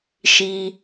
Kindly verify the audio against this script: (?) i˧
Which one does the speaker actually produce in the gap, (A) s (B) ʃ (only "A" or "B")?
B